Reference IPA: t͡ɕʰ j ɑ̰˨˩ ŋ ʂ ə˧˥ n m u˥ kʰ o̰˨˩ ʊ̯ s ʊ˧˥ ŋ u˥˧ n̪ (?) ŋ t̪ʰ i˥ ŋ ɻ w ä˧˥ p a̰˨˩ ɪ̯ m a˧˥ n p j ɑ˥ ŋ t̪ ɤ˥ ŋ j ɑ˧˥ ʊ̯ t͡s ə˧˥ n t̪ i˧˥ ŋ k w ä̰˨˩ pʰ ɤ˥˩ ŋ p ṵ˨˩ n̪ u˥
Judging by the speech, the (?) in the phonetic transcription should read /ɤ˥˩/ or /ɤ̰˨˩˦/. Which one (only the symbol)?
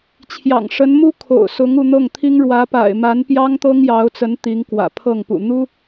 ɤ˥˩